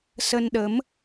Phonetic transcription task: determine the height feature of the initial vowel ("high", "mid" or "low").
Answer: mid